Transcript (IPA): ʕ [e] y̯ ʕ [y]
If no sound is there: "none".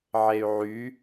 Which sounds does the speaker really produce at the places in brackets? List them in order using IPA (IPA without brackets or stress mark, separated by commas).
e, y